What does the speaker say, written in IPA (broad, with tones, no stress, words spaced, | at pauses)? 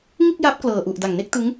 ŋɯ˥˩k̚ja˦˥p̚ klɤː˨˩ʔu˨˩ʔ da˨˩ŋne˥˩k̚tɯ˦˥ŋ